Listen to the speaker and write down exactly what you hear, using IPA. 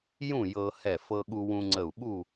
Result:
j ũ˥˨ j ɤ˧ h ɛ˧˩ f ɤ˧ ɠ u˧ w ũ˧ ŋ͡ǀ ə˧˩ u̯ ɓ u˥˨

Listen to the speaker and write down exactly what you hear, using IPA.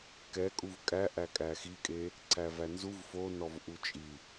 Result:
k ɛ kʼ u v kʼ æ ʔ æ kʼ æ x i kʼ e | ǀʰ æ v æ n z u v f o n ɔ v ʔ u t͡ʃʼ i

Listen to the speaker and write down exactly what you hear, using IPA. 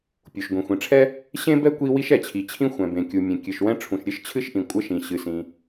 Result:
pʲ u˩ ʃ ɡʷ ĩ˩ xʷ ĩ˩ ʈ͡ʂʰ ɛ˥ | ɕ ẽ˥ b ɛ˥ kʷ i˥ w i˥ ʃ ɛ˩ t͡ɕʰ i˩ t͡ɕʰ ĩ˥ xʷ ɛ̃˩ b ẽ˩ kʲ u˩ mʲ ẽ˩ kʲ ɨ˩ ʃ w ɛ̃˥ ʈ͡ʂʰ ũ˩ ʃ ɾʲ ɨ˥ ʃ t͡ɕʰ ɨ˥ ʃ ʔ ĩ˩ kʷʼ ɘ˥ ʃ ĩ˩ ɕ ɨ˩ s ĩ˩

